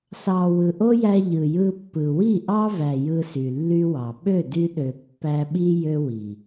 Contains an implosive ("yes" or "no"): yes